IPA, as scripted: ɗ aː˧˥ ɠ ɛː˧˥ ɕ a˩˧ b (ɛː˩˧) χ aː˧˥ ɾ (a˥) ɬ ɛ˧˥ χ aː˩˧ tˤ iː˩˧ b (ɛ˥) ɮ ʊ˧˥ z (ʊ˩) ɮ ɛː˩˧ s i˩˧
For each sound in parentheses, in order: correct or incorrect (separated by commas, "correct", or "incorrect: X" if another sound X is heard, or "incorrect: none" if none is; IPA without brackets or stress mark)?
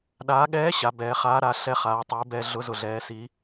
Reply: correct, incorrect: a˩˧, incorrect: ɛ˧, correct